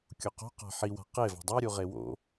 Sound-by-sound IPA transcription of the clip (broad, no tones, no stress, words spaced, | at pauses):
kʲoqo̤ qa̤ħiwa̤ qevɑ̤ dˤɑɾʲuʁe wo̰